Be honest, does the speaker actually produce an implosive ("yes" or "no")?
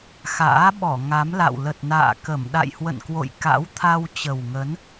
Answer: yes